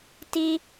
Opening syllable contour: high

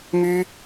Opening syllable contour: high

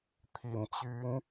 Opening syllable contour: low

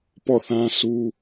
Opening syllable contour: falling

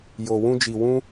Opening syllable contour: low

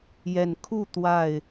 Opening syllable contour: low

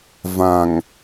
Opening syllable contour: low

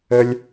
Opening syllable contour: high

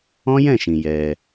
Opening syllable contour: high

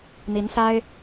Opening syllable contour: rising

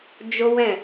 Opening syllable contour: high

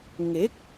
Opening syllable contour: rising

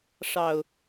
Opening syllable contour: low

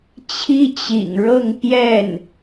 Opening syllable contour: high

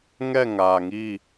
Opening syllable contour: falling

